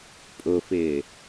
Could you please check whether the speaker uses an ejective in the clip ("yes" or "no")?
yes